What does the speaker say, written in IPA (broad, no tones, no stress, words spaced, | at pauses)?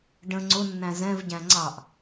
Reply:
ɖə̃ ŋ͡ǀʊnːæ̃ zɛ̃vɟæ̃ ŋ͡ǀɑʔ